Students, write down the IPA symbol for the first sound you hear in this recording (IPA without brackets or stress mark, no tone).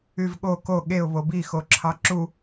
y